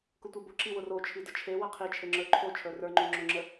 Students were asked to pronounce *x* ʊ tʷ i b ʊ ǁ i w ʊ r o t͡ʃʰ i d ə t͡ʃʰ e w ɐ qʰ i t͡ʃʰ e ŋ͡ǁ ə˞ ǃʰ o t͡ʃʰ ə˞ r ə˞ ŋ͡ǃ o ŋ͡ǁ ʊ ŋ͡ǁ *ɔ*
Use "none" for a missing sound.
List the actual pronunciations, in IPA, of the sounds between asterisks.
k, ə

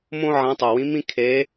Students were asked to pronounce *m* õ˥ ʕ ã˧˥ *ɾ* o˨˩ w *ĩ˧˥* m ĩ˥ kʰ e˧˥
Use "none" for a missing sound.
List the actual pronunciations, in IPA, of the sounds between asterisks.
m, tˤ, ĩ˧˥

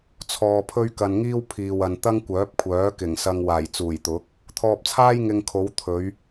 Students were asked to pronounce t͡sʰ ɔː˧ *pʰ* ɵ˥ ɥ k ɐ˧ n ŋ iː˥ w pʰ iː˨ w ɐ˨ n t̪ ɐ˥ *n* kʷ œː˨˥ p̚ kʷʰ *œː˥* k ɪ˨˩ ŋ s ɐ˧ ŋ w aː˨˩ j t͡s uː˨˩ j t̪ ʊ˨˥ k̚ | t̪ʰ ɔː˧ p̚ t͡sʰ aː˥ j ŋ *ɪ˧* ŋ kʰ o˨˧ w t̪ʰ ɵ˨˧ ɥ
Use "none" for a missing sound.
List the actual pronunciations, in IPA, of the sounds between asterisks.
pʰ, ŋ, œː˨˥, ɪ˧

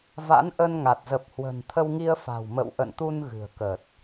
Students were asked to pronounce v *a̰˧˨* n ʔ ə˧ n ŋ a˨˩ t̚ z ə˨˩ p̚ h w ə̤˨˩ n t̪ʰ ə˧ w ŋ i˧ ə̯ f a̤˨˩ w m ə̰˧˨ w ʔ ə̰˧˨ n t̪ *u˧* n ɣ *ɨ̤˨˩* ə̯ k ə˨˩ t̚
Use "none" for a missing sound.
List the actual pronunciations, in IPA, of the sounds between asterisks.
a̰˧˥, u˧, ɨ̤˨˩

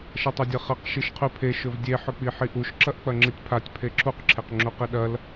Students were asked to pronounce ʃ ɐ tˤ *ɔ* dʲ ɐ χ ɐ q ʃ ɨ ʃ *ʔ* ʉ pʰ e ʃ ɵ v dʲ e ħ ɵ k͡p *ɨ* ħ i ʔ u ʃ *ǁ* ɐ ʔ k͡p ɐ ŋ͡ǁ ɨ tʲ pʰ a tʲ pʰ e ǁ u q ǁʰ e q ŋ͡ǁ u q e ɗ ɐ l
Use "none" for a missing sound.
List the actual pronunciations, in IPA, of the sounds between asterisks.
ɵ, qʰ, i, ǁ

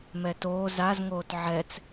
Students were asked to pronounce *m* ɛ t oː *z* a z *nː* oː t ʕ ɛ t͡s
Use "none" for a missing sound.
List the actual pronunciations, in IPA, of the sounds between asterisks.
m, z, ŋ

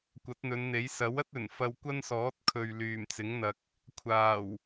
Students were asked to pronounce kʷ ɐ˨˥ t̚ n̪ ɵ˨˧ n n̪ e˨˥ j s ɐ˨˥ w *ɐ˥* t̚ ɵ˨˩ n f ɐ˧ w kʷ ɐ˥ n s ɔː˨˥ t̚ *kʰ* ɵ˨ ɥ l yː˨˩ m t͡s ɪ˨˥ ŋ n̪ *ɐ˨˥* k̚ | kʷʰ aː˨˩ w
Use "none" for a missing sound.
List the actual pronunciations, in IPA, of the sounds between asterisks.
ɐ˥, kʰ, ɐ˨

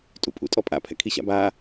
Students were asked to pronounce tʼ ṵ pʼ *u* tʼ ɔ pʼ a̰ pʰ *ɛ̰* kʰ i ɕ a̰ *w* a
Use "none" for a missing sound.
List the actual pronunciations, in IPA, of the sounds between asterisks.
ṵ, ɛ̰, b

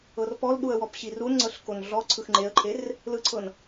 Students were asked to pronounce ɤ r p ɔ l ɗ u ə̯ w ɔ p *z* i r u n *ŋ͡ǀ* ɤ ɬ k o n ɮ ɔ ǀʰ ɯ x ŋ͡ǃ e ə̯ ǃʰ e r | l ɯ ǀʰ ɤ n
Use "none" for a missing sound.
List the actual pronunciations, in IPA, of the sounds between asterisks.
ɕ, ŋ͡ǀ

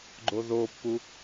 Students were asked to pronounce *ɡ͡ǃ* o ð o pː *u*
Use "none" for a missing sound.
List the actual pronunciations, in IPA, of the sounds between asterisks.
ɡ͡ǃ, u

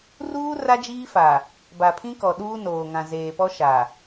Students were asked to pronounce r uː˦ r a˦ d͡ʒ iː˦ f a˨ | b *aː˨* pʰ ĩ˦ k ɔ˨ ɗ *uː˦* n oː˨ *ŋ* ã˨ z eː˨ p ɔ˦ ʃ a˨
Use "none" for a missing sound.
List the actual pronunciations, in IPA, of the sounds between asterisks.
a˨, uː˦, ŋ

